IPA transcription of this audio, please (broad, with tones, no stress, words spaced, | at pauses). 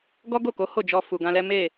ɡɔ˦ɡo˦˨ko˨˦ ho˦˨d͡ʒɔ˧ fu˨ɡã˧lɛ˦ me˦˨